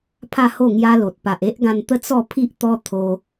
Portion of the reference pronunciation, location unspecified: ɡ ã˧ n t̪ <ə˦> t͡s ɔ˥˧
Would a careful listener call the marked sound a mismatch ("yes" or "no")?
no